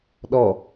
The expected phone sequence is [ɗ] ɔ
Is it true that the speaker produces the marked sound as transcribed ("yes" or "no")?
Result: yes